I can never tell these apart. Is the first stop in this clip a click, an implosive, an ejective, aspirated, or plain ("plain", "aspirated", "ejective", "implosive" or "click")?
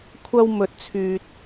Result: aspirated